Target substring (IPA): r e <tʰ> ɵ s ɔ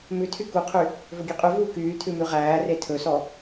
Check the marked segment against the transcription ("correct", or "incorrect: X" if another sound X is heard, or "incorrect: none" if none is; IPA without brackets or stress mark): correct